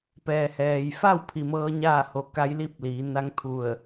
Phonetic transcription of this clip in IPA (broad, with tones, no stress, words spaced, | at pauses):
pɛː˩hɛː˩jfa˥˨w pʰi˩mɤː˧˥ɲaː˥˨ ho˧˩ka˧˥jli˥˨p̚ liː˩˧ na˧˥ŋt̪ʰu˧˩ə̯